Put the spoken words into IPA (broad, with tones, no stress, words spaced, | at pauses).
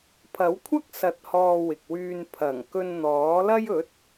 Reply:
pʰɐ˨˥wkʷʰɐ˥k̚ sɐ˧t̚hɔː˧wɪ˨k̚wyː˧n pʰɐ˨˩ŋ kɵ˧nn̪ɔː˨˥lɐ˥j ɵ˨˥t̚